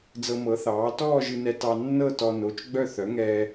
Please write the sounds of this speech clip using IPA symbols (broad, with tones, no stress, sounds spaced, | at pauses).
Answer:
d͡z ɤ˧ m ɤ˩˥ θ ɑː˩˥ t ɔː˥˧ ʒ ɨ˧ n ɛ˧ t ɑ˧ nː ɤ˥˧ t ɔ˧ n o˩˧˩ t͡ʃ ɡ͡b œ˥˧ θ œ˩˥ ŋ ɛː˧